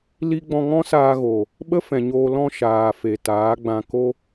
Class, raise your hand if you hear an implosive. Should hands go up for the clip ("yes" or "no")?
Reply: yes